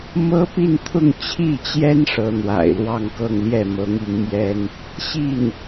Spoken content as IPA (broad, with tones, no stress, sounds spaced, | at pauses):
m ɤ˥ p i˥˧ n t̪ʰ ʊ˥˧ ŋ t͡ɕʰ i˥˩ t͡ɕ j ɛ˥ n ʂ ɤ˧˥ n̪ w a̰˨˩ ɪ̯ l w ɑ˥˧ ŋ k ɤ˥˧ ŋ l j ɛ˥˩ m ɤ˧˥ ŋ i˧˥ ŋ m j ɛ˥ n | ɕ i˥˩ n